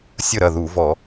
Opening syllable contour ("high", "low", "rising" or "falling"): falling